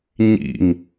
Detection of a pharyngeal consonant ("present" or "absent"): absent